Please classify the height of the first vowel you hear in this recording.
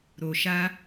mid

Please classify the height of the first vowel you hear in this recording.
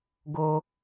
mid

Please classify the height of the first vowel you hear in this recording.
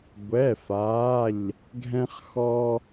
mid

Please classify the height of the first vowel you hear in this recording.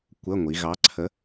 mid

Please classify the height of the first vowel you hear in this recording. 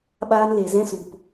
low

